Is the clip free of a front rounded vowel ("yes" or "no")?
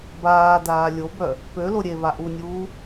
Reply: no